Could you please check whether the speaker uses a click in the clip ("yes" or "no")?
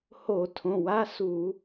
no